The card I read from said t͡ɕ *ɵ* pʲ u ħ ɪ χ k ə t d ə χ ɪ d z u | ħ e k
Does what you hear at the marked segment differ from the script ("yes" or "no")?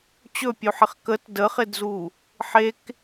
no